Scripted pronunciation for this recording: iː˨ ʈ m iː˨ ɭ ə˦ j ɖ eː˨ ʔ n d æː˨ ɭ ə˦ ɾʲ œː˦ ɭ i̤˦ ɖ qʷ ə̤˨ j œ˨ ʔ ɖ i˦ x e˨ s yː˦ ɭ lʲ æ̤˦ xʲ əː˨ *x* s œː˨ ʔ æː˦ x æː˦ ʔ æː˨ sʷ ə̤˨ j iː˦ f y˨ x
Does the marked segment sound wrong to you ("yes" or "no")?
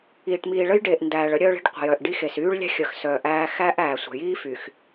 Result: no